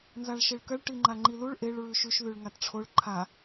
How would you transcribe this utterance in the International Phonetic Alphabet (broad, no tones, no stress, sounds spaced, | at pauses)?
n z a ɭ ʃ e ɭ k ɐ ɭ ʈ i ŋ͡ǃ a ŋ͡ǃ i l u ɭ ʔ e ɭ ɹ ʉ ʃ ʉ ʃ ð ʉ ɭ ŋ a t ʈ͡ʂʰ o ɭ ǃʰ a